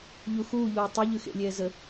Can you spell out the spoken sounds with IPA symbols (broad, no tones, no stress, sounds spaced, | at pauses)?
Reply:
ʎ u x uː ʎ uː tˤ ʉ ʎ ʉ x ḛ lʲ ɛː z ə